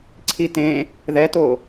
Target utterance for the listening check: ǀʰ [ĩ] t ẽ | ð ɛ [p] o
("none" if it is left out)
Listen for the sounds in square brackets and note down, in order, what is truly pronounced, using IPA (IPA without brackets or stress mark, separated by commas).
i, t